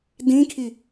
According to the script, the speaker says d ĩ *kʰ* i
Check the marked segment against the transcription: correct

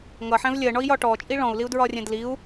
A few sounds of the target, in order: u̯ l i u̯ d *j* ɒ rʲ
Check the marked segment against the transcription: incorrect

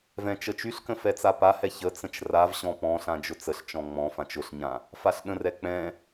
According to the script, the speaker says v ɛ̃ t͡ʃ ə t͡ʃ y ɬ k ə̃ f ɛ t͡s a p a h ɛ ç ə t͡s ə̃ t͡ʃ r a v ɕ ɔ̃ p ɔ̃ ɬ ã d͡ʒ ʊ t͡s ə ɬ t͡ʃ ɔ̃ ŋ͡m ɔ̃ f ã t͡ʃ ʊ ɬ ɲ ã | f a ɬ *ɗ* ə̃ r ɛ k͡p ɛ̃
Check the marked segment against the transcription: correct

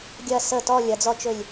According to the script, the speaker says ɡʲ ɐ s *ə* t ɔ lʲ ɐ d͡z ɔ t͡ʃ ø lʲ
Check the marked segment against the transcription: correct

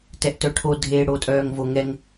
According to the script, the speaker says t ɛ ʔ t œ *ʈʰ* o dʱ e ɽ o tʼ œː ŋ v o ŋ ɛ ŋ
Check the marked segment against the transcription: correct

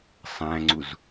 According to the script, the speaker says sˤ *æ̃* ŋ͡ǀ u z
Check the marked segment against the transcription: correct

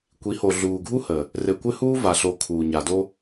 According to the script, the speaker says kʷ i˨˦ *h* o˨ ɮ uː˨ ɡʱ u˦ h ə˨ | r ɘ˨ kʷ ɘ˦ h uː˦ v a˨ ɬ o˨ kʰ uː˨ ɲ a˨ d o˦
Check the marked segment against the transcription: correct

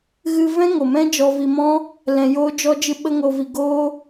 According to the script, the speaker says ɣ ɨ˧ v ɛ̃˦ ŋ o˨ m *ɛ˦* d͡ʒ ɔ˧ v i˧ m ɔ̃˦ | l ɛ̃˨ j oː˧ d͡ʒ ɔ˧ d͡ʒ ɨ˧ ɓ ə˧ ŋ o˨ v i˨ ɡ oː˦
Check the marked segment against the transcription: incorrect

